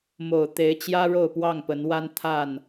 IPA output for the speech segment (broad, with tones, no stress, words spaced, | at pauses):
mo˨˩ʊ̯t̪e˨˦ɪ̯ t͡ɕjä˦ɻo˥˨ʊ̯ pwɑ˥˨ŋpə˨˦nwa˦n t̪ʰa˥˨n